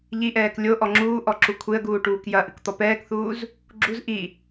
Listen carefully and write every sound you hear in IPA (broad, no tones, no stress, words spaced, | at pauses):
ʎiʔɛːk lʲoʔɔ ŋ͡ǁuːʔɔ ǁukʷʰeə̯ɡuː ʈuːkjɐʔɨk t̪ɔpɛːkθuːz | ɡ͡ǁuz ʔi